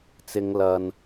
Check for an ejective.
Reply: absent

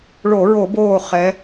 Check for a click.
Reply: absent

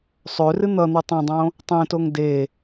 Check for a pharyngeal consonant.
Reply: absent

